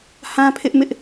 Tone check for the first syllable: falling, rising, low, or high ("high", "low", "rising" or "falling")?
high